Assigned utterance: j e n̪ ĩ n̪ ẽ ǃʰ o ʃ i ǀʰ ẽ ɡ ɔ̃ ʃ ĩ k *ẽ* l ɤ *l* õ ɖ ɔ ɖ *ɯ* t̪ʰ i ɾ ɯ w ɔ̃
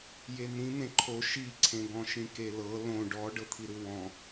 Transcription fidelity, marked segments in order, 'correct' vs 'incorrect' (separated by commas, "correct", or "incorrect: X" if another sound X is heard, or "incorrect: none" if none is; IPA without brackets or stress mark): incorrect: e, correct, incorrect: ɤ